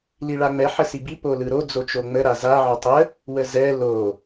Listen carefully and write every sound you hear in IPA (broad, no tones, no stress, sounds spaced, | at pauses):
l i ɭ a ŋ͡m ɛ ħ ə s i b i p o l ɯ ɾ o d͡z o t͡ʃ o ŋ͡m ə ɾ a z a ʕ ɔ tˤ ə | w ə z ɛ l o